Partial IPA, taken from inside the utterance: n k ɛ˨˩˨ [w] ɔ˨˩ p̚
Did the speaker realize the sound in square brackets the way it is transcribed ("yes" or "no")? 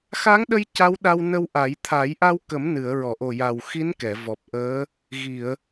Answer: no